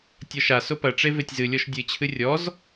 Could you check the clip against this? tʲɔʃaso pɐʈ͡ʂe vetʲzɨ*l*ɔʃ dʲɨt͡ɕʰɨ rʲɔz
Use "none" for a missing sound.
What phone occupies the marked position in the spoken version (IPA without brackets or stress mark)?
lʲ